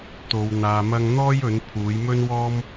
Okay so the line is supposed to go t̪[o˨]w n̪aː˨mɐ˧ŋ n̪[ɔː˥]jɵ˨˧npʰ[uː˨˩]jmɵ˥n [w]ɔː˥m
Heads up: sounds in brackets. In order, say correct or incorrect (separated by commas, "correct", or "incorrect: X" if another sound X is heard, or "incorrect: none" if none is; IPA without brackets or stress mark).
correct, correct, incorrect: uː˨˧, correct